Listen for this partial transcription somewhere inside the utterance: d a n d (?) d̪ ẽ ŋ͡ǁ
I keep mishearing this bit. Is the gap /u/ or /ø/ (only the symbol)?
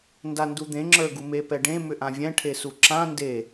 u